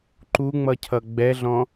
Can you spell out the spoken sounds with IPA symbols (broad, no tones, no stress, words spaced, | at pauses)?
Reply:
ǃuŋ͡mʌcʰʌ ɡ͡bɛɮɔ̃